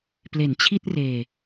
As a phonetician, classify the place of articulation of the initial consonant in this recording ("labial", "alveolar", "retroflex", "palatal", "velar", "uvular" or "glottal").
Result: labial